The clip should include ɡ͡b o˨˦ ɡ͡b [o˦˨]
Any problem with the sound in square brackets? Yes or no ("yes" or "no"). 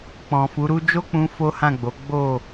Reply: no